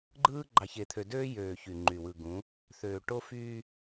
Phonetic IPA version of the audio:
ɡ͡ǃɯː˦ ɡ͡ǃɑ˨çe˨t̪ʰø˨ døː˦jøː˨ çy˨ŋ͡ǃy˨wɯ˨ɡũ˨˦ | θøː˨ ʈo˦fyː˦

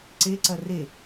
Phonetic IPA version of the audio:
ǀeǀɐ re

